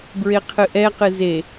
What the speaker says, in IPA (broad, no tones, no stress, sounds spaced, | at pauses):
b ɹ e qʰ ɨ ʔ ɛ q ɨ z e